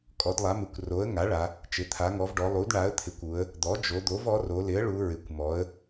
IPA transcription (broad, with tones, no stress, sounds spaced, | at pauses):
kʼ ɔ˩˧ d lˠ a˩˧ m ɪ˩˧ kʷ r o˩˧ ə̯ ŋ a˩˥ ɭ a˩˧ | t͡ʃ ɪ˩˧ t̪ʰ a˩˧ ŋ ɔ˩˧ v ɖ ɔ˩˧ lˠ u˩˥ d ɳ a˩˥ ə̯ t̪ʰ ɪ˩˥ kʷ u˩˧ ə̯ | d̪ ɔ˩˥ d͡ʒ o˩˧ d̪ o˩˥ v ɔ˩˥ r o˩˧ l ɪ˩˥ ə̯ ɭ u˩˧ ɹ ɪ˩˧ kʷ m ɔ˩˧ ə̯